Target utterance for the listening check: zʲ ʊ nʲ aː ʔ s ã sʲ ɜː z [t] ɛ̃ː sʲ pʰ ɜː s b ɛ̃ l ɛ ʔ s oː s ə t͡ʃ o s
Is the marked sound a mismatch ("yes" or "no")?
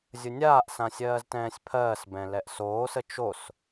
no